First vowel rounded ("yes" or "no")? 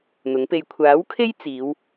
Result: yes